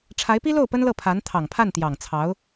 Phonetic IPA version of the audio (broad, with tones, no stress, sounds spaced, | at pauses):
ʈ͡ʂʰ a˧˥ ɪ̯ p i˥ l o˥˩ ʊ̯ p ə˥ n l ɤ˥˩ pʰ a˧˥ n t̪ʰ ɑ˨˩ ŋ pʰ a˥˩ n t̪ j ɑ˨˩ ŋ t͡sʰ ɑ˧˥ ʊ̯